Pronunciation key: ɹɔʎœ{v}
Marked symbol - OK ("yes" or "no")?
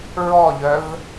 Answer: yes